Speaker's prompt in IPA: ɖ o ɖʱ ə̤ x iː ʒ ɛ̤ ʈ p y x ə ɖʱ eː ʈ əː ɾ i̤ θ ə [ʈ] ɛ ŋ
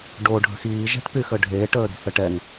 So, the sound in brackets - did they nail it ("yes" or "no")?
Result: yes